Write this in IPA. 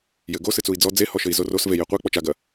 j ɘ ɡ o s ɨ t͡s u i̯ d͡z ɔ d͡z e h ɔ ʃ ɘ i̯ z o r o s v e j e qʷ e k͡p ɔ t͡ʃ a ɡ ɐ

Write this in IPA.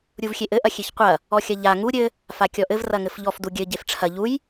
ɾʲ u v xʲ e ʔ ɘ ʔ ɐ xʲ e ç qʷ ɐ | ɔ xʲ ɐ ʎ a ŋ u ɾʲ ɘ | f a kʲ ɔ ʔ ɘ v r ɐ ŋ ɘ f ʎ ɔ f d u ɡʲ ɘ ɟ e f ʈ͡ʂʰ ɐ ʎ u j

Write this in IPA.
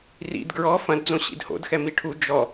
r ḭ d ɡ ɹ ɔ f ɐ̃ d d͡z õ ɕ ḭ d h o̰ d x ɛ m i ʈʰ u d͡ʒ ɔ

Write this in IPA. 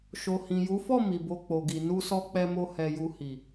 ʃ o˨ h ĩ˨ j u˨˦ f ɔ˦˨ m i˨ b o˧ k͡p o˨ ɡ i˨ n u˧ s ɔ˧ k͡p ɛ˧ m o˧ h ɛ˧ j u˧ h i˨

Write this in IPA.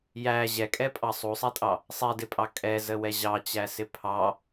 j æ ʑ ɛ kʼ ɛ pʼ ɑ sˤ u sˤ ɛ tʼ ɑ | sˤ ɛ d ɪ pʼ ɑ kʼ ɛ z ə w ɛ ʑ ɑ t͡ɕ æ s ɪ pʰ ɑ

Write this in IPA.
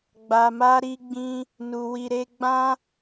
ɡ͡b a˨ m a˧ ɾ i˧ ɡ͡b ĩ˧ | n u˧ w i˧ ɾ e˦ ɡ͡b ã˧

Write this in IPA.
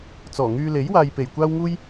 t͡s ɔː˨˩ ŋ yː˧ l e˨˥ j w aː˨ j p e˨˩ j kʷ aː˥ w ŋ uː˥ j

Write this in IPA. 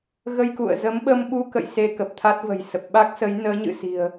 ɣ ə˧ j k ṵ˧˨ ə̯ z ə˨˦ m ɓ ə˧ m ɓ u˧ k ə̰˧˨ j s e˧ k ə˨˩ p̚ t̪ʰ a˦˥ t̚ v ə̤˨˩ j s ə˨˩ p̚ ɓ a˦˥ k̚ s ə˨˦ j n əː˨˦ ɲ ɨ̰˧˨ s i̤˨˩ ə̯

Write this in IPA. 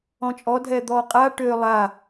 ɔ̃ t͡ʃʼ ɔ dʱ ɛ d̪ ɔ qʼ a ʈ ø lˠ a

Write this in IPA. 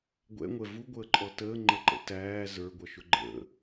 ɡʷ ɛ̰ ŋʷ ɛ v u ɡʷ əː ǃʼ ɔ t əː ŋ͡ǃ ə ǃ ə̰ t æː z ə˞ ɡʷ ʌ ʃ ʊ ɡ͡ǃ ə̰

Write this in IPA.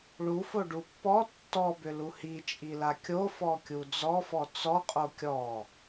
ɭ u f o ɖ u pː ɔ tː ɔ b ʏ l u h i t͡ʃʼ i l a kʲ o f ɔ kʲ u d͡z ɔ f ɔ t͡s ɔ qʼ o kʲ ɔ

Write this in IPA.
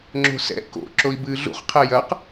ŋ͡ǁ o̤ s ɛ̰ k o̰ ǁ o i̯ b ɨː ɮ ṵ χ qʰ ɛ j ɐ q

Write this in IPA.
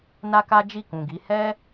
n a˦ k a˦ d͡ʒ i˦˨ k ũ˨ ɡ i˨˦ h ɛ˦

